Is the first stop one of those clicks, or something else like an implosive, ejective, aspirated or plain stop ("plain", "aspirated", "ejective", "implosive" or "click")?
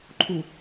click